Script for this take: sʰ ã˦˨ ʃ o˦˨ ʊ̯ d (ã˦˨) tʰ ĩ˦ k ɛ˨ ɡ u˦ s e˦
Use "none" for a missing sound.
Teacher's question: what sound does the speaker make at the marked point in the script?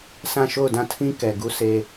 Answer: ã˦˨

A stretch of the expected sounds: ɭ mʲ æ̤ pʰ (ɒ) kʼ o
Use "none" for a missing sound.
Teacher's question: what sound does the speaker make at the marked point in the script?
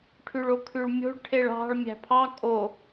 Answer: ɑ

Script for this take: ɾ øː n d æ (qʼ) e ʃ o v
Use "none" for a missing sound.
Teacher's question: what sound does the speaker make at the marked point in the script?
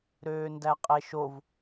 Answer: qʼ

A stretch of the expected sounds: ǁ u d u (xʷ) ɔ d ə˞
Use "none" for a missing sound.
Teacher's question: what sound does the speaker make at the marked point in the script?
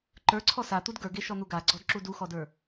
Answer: x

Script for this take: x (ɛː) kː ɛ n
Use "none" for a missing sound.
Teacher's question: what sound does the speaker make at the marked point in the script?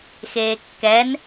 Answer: eː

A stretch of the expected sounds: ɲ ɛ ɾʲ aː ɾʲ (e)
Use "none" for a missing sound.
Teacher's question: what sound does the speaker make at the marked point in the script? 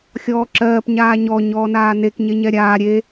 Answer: e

